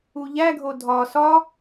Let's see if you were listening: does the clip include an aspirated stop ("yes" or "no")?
no